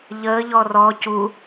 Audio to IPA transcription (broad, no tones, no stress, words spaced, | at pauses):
ʎəːʎɔ rɔ cu